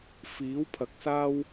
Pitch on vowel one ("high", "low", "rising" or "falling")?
rising